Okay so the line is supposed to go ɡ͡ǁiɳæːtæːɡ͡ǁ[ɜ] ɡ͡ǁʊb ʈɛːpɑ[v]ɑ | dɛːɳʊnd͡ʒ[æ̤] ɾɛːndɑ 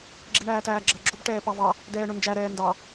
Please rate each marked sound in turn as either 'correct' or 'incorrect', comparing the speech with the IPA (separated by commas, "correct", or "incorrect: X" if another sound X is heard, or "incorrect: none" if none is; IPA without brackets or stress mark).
correct, correct, incorrect: æ